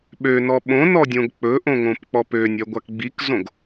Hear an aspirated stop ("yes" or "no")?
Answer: no